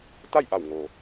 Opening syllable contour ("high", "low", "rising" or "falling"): falling